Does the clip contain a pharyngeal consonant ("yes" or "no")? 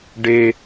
no